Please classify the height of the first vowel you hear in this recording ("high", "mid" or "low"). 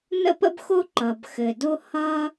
mid